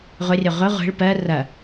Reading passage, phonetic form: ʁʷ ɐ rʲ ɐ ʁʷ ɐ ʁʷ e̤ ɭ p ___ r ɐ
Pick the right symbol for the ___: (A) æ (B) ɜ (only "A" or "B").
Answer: B